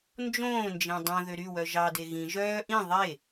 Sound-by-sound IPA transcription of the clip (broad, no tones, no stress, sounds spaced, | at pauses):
n d͡ʒ õː n d͡ʒ ẽ dˤ õ ð ø ɾ y w œ ʒ ɑ d e ɣ ĩ ʒ œː ʔ ĩ ðˤ e